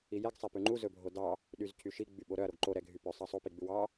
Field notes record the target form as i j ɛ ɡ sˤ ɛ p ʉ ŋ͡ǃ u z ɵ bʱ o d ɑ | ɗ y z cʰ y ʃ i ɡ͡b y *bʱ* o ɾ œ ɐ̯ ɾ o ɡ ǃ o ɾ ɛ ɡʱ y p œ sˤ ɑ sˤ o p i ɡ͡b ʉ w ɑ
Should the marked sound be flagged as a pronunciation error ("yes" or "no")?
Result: yes